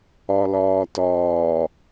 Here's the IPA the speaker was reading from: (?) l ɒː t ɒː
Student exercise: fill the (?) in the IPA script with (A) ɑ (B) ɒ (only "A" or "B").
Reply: B